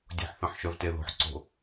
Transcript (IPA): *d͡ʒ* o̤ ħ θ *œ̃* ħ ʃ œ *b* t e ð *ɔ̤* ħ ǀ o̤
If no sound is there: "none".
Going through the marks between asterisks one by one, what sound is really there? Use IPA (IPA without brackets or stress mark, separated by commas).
dʲ, œ̃, v, o̤